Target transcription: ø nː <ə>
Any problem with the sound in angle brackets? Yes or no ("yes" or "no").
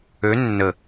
no